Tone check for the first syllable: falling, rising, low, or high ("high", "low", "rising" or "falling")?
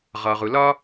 low